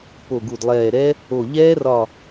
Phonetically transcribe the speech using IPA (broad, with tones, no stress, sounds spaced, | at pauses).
p o˧˩ ɡ u˧˩ d lˠ ɛː˧˩ ɾ ɛ˦˥ | o˧˩ ʎ ɛː˦˥ r ɒ˧˩